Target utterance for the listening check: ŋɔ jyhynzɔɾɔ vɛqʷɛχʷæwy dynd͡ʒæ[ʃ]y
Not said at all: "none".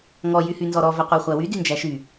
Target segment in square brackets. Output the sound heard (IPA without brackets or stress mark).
ʃ